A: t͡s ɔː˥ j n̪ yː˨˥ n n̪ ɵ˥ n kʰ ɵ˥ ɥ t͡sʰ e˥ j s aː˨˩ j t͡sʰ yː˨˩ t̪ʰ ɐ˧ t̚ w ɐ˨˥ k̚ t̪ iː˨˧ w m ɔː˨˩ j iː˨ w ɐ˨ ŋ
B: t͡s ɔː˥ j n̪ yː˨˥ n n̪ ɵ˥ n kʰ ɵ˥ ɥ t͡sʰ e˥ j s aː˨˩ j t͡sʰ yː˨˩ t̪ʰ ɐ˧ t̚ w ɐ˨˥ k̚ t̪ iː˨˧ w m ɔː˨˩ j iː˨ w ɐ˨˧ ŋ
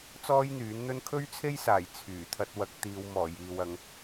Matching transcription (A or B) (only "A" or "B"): B